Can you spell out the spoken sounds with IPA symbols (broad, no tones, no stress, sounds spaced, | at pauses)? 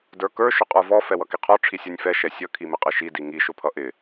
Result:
d ə˞ k ə˞ ʃ ʊ qʼ ə˞ v ɔ f ɛ w ʌ k i qʰ ɔ ʈ͡ʂʰ i sʲ ɔ nʲ f ɛ ʃ ɛ sʲ ʌ kʰ i m ɪ qʼ ɪ ʃ i d i ŋ i ʃ ʊ pʰ ʌ ʔ ɪ